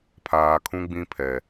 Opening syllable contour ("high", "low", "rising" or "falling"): low